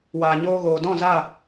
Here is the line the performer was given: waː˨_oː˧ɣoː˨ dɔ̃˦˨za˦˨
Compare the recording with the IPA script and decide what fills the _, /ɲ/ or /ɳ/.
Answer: ɲ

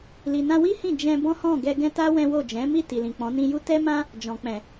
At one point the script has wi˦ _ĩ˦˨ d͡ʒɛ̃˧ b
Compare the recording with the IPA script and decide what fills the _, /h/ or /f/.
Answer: h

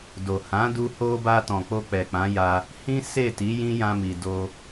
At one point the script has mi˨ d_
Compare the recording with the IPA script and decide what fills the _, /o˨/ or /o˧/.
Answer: o˧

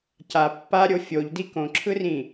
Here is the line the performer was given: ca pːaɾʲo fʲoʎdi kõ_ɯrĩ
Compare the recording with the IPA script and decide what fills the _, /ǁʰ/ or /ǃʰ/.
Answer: ǁʰ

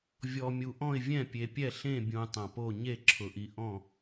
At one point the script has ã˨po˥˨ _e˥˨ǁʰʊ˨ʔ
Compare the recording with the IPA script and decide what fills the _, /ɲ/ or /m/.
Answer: ɲ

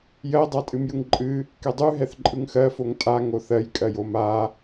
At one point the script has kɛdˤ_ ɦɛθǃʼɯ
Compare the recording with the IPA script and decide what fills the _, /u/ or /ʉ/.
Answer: ʉ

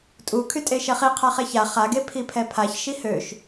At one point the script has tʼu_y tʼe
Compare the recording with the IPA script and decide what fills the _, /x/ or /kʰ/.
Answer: kʰ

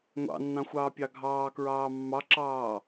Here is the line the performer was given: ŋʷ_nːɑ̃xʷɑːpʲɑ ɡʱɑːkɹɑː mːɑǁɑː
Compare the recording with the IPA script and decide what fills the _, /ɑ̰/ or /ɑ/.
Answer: ɑ̰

